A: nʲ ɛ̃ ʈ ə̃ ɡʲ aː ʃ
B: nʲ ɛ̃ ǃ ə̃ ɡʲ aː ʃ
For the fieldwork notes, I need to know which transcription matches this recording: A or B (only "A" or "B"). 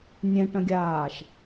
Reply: A